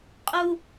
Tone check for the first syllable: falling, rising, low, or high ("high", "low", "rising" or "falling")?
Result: high